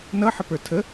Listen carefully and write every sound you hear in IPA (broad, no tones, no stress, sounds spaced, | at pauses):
n ʌ ħ ə p ə˞ tʰ ə